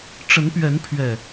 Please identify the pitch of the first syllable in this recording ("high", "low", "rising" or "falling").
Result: rising